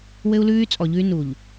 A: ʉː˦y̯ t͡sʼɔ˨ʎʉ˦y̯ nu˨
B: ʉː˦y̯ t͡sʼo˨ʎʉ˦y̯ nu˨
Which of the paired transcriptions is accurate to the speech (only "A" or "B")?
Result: A